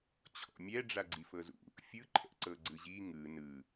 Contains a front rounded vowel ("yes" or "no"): no